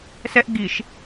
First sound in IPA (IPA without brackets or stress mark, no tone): s